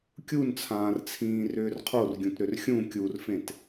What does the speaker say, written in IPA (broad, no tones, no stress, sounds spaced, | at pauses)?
kʲ u n t͡sʰ ãː r t͡sʰ ĩː r ʏː r qʰ o r ɡʲ ũ t ɾ ʏ r xʲ ũ kʲ u r f ẽ t